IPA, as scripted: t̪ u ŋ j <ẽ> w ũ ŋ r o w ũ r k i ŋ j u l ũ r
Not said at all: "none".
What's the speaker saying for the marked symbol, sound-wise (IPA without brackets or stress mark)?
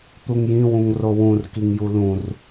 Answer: ĩ